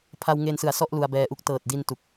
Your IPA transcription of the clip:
pʰa˧wŋe˧nsɯ˨˩a̯ sɔ˥˩ʔ lu˧a̯bɛː˧ʔu˦˥k̚ tɤː˨˩t̚di˧n tu˨˩k̚

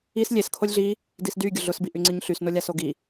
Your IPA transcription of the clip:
is lʲes kʰolʲɮi | disdy ɡʲʊɮʊs biʔyŋ͡ǀiɲɬys nolʲasoɡi

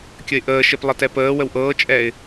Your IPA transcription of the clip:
kʲəɪ̯ʔəːʃep lˠətɛpəːwəw ʔɤːt͡ʃʼɛːɪ̯

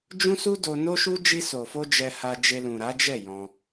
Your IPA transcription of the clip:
d͡ʒũ˦su˦ do˧ no˦ʃu˦ d͡ʒi˧so˨fo˧ d͡ʒɛ˧ha˧d͡ʒe˧ lũ˨ɾa˨˦d͡ʒɛ˦˨ jɔ̃˧

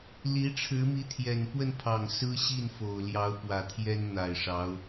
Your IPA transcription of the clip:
li˧˥ʈ͡ʂʰɻ̩˧˥mi˧˥ t̪ʰjɛ˨˩npwə˥˩npʰɑ˨˩ŋ sɹ̩˥ɕi˥˩nfo˨˩ʊ̯ ljɑ˧˥ʊ̯ pwä˨˩t̪ʰjɛ˥n n̪a˨˩ɪ̯ʂɑ˧˥ʊ̯

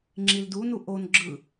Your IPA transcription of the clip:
ŋ͡ǁildunu ʔon ɡ͡ǁɯ

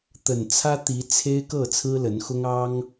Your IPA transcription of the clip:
t̪ə˨˩nt͡sʰä˦t̪i˨˦ t͡sʰe˦ɪ̯kɤ˥˨ t͡sʰɹ̩˦lə˨˦nxʊ˦ŋ ɑ˦ŋ

